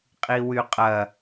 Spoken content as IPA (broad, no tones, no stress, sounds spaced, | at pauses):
qʼ i w y qʼ ɐ